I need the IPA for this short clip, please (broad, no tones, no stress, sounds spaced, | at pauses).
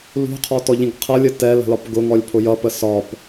l ṳ qʰ ɔ t ɔ ʎ ĩ ɡ qʰ ʌ lʲ ə t ɛ l ə̤ l ɒ p ɡ ʊ ŋ ɔ lʲ pʰ ʊ j ʌ p ə s ɒ p